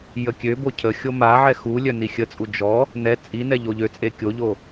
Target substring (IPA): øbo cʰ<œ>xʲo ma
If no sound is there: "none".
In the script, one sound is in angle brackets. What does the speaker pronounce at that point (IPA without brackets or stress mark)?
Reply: ə